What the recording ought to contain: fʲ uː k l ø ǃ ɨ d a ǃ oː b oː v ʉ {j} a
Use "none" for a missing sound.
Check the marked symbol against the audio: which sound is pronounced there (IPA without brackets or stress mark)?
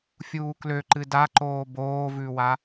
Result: w